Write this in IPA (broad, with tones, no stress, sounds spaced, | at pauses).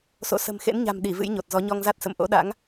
s o̰˧˨ s ə̤˨˩ m x ḛ˧˥ n ɲ a̤˨˩ m ɗ i˧˩ v ɨ̰˧˥ j ɲ o˨˩ t̚ z ɔ˨˦ ɲ ɔ˧ ŋ z a˦˥ t̚ s ə̰˧˨ m ʔ o̰˧˥ ɗ a̰˧˥ ŋ